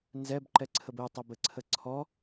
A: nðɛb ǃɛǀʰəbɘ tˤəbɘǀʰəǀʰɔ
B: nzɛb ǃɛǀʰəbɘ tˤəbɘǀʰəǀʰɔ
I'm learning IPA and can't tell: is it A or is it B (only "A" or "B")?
B